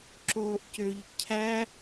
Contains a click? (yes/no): yes